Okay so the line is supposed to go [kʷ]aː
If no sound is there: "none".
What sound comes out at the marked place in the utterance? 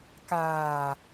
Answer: k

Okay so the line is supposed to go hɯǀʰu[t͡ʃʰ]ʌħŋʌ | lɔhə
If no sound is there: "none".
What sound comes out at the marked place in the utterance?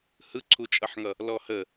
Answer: t͡ʃʼ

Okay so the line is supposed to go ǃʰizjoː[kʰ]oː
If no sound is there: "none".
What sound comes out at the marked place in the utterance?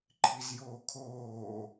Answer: kʰ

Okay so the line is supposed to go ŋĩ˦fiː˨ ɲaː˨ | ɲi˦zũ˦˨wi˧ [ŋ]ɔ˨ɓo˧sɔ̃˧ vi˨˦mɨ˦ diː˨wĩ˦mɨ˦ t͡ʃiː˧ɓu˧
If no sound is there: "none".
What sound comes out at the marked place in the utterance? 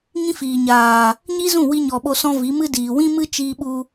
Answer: ɲ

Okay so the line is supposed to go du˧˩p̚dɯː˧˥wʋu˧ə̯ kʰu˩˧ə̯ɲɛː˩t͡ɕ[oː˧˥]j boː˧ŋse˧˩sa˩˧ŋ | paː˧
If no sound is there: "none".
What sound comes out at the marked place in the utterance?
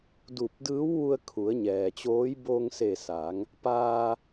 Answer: oː˧˥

